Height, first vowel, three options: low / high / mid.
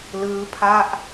high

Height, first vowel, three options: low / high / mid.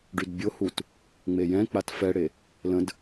high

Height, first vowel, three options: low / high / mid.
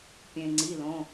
mid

